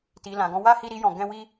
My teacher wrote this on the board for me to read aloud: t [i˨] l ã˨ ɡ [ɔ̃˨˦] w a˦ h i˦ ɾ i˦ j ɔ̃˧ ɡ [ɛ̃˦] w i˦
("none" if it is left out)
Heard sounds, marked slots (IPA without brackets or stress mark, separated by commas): i˨, ɔ̃˨˦, ɛ̃˦